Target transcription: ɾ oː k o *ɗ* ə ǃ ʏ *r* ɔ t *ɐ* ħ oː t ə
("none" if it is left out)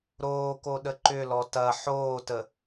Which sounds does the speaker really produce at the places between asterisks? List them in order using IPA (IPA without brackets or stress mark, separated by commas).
ɗ, l, ɐ